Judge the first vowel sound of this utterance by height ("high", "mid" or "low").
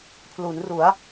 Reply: high